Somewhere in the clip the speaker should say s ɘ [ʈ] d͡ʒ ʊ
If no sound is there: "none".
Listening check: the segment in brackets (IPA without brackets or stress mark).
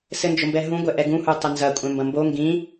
n